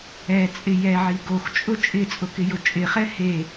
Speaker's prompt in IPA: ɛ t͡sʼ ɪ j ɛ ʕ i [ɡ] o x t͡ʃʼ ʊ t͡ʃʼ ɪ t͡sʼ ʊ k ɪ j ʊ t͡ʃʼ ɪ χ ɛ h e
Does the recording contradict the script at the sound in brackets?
no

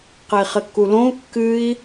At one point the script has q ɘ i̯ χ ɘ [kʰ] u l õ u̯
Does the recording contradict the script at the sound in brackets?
yes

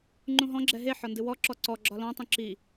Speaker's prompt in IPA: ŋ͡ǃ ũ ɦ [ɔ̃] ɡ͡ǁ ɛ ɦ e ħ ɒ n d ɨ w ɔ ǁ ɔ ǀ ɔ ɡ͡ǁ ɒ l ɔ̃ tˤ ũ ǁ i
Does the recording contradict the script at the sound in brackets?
no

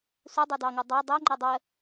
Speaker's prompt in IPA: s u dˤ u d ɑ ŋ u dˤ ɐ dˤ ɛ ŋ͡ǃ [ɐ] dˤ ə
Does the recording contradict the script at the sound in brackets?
no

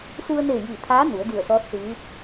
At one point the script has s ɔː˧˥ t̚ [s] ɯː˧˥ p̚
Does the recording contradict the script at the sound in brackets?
no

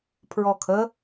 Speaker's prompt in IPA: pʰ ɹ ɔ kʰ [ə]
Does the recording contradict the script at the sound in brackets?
no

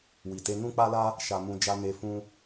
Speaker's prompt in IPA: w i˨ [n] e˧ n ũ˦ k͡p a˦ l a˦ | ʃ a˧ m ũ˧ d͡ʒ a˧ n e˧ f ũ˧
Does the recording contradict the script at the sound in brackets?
yes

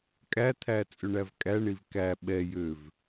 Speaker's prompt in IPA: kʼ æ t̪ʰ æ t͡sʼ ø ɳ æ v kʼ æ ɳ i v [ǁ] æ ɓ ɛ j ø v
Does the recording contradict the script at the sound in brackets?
yes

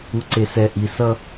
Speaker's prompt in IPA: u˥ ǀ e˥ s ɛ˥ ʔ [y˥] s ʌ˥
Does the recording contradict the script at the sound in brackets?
yes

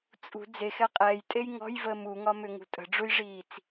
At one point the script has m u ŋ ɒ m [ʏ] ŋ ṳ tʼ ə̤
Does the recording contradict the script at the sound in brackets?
no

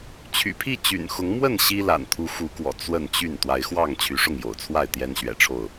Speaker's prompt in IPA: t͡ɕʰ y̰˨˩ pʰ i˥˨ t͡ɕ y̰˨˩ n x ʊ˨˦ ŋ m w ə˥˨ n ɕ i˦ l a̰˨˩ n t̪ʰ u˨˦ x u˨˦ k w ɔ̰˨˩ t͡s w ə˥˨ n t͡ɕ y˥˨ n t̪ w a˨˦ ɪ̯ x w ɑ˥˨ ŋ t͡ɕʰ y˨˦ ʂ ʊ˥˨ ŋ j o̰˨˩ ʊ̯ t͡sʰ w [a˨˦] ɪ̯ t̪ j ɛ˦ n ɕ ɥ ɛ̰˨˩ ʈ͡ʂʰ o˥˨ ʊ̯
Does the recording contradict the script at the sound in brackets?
yes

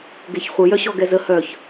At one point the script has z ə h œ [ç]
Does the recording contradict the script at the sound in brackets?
no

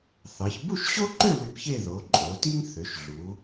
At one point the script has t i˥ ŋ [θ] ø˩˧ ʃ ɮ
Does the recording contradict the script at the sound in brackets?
no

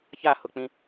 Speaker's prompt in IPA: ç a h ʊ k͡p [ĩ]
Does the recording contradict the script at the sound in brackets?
no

